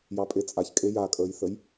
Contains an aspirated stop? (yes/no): no